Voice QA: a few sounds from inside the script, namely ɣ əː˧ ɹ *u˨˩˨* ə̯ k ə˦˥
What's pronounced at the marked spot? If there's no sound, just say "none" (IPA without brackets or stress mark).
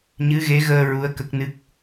u˧˥